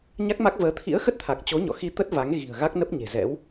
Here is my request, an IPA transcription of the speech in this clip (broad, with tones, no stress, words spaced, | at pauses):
ɲa˦˥k̚ma˦˥k̚vəː˨˦ t̪ʰḭ˧˥ə̯xə˦˥t̚t̪ʰa˨˩k̚t͡ɕo˨˦ ɲɔ̰˧˨xi˧t̪ə˦˥t̚ va˨˦ŋɣi̤˨˩ə̯ɣa˦˥k̚ nə˦˥p̚ɲe̤˨˩zɛ̰˧˥w